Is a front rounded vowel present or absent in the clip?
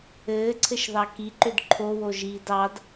present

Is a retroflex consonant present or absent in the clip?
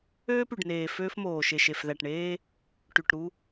present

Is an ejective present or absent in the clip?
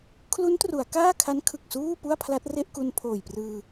absent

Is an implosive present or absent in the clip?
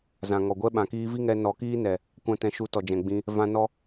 present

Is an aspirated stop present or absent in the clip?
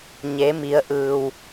absent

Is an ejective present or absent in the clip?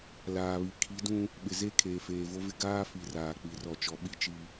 absent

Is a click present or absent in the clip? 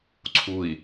present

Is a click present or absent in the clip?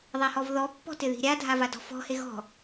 absent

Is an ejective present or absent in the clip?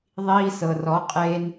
present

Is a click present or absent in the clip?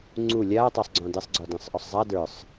present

